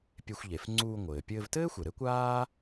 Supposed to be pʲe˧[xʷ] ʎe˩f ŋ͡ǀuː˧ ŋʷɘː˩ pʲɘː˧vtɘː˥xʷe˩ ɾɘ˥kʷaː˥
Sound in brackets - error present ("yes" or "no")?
no